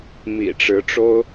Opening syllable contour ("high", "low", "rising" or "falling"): low